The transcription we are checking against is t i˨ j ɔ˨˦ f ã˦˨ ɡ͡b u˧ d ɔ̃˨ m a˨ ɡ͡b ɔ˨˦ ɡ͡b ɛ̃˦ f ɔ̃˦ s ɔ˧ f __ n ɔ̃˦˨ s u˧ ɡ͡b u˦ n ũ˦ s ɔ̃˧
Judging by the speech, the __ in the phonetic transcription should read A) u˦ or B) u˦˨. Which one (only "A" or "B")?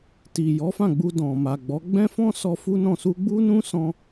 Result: A